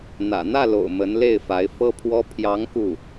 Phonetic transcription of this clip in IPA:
n̪ ä̰˨˩ n̪ ä˥˩ l o̰˨˩ ʊ̯ m ə˧˥ n l e˥˩ ɪ̯ f a˧˥ ɪ̯ f ɤ˥ pʰ w ɔ˥ pʰ j ɑ˧˥ ŋ k u˥˩

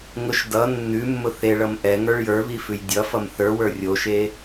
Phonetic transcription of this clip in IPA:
ŋ ʊ ʃ d ʌ nː ʉ mː ʊ θ e ɭ ʌ m ʔ ɛ ŋ ə˞ ɭ j ə˞ β i f ʉ j dʲ ʌ f ʌ m θ ə˞ w ə˞ rʲ o ʃ e

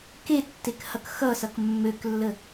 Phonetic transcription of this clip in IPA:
k e tː e k h ʌ k x ʌ s ʌ k mː ø k lː ə

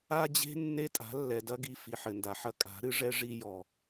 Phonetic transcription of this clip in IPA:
a˦ d͡ʑ e̤˦ nː e˦ tʼ a̤˨˦ lː ɛ˨ d ɐ˦ ɡ i˨ f i˨ ħ ɘ˨ n d a˨ ħ ɐ˦ kʼ a̤˨˦ ɾ ɨ˦ ʐ ɛ˦ ʐ i˦ j ɔ˨

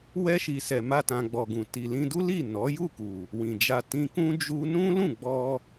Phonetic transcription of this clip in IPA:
w ɛ˧ ʃ i˨ s ɛ˨ m a˧ t ã˨ ɡ͡b ɔ˨ ɡ ũ˨ t i˨ l ĩ˧ d u˦ l i˦˨ n ɔ˨˦ j u˦˨ k u˨ | w ĩ˨ d͡ʒ a˧ t ĩ˧ k ũ˦ d͡ʒ u˦ n ũ˦ l ũ˦˨ ɡ͡b ɔ˧

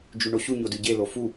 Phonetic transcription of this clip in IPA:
d͡ʒ ʉ ɳ o ɕ u ɲ o d ʉ ɟ e l o f u

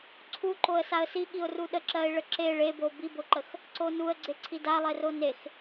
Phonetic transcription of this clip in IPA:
ǀʰ u ǃ o ə̯ s a ə̯ s i ɠ i ʊ̯ r u ɗ ə ǁ ɜ ɪ̯ ɭ ə ǁ e ɭ e b o b i b o ǃ ə x | ǀ o n u ə̯ ɡ͡ǀ e ǀʰ i d a lˠ e r o n e x

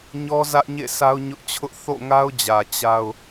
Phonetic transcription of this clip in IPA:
ɲ ɔ˦ z ä˦ ʔ ɲ ḛ˦˨ sʰ a˦ ʊ̯ ɲ ʊ˦ ʔ t͡ɕʰ ʊ˦ ʔ θ o̰˦˨ ŋ a˦ ʊ̯ d͡ʑ ä˨ t͡ɕ a˦ ʊ̯

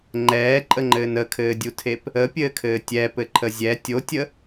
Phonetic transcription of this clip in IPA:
ŋ͡ǃ ɛː ǃʼ ə ŋ͡ǃ ɘː n ə kʰ ɘː dʲ u tʰ e p | ə pʲ ɘː kʰ ɘː tʲ ɛ p ɘ ǃʰ ə zʲ ɛ tʲ o tʲ ə

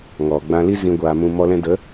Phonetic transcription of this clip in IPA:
ŋ ɔ˨ ɡ͡b ã˧ l i˦ z ĩ˧ ɡʷ aː˨ m ũ˧ m ɔ˧ l ɛ̃˧ d ə˨˦

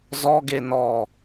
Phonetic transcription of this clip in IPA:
z ɔ ɡ e n ɔ

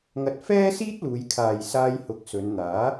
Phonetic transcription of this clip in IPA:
ŋ ɐ˨ t̚ f ɛː˥ s iː˥ t̚ l uː˨˧ j kʰ aː˨ j s aː˧ j h ʊ˨˥ k̚ s ɵ˨˧ n n̪ aː˨˥

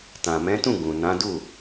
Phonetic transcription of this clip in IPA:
t ã˨ m ɛ̃˨˦ t ũ˦˨ ɡ ũ˨ n ã˨˦ d u˦˨

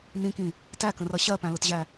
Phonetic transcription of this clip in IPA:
n ĩ k ĩ | t æ k ə̃ r ʌ ɕ ɜ p æ̃ l ʊ t ʑ æ

